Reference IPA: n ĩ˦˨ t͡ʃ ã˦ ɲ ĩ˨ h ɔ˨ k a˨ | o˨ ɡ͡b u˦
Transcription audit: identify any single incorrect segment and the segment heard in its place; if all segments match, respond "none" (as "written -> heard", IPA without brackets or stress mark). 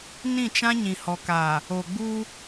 none